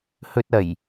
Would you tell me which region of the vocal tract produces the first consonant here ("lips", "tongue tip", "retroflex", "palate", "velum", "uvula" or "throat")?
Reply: throat